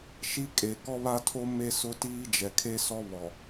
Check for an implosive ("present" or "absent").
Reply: absent